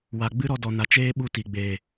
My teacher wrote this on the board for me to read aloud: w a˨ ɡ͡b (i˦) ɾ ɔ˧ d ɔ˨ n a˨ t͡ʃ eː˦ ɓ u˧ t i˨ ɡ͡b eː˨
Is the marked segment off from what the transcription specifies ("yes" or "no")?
yes